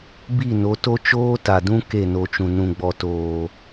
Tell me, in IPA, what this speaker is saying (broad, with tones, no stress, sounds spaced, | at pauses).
b i˦˨ n o˨˦ t o˦ t͡ʃ oː˦ t a˨ d ũ˦ k e˦˨ n o˧ t͡ʃ ũ˨ n ũ˨ ɡ͡b ɔ˨ t oː˨